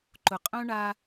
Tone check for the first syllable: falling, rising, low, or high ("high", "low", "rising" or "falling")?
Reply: low